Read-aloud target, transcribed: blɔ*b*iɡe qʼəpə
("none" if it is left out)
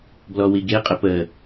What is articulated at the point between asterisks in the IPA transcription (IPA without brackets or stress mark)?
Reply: w